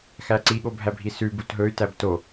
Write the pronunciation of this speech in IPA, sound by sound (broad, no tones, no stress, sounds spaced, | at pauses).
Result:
x æ ǀ i ɠ o bʱ æ bʱ i s ʉ b u t ɦ ɵ y̯ t æ b t o